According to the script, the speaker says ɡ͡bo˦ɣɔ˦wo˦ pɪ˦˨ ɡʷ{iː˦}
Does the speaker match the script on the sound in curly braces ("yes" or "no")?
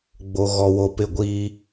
yes